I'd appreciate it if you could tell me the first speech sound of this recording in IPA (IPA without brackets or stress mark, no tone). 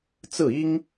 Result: t͡s